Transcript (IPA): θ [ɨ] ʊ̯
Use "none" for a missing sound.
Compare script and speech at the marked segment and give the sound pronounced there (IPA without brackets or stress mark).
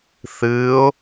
ɨ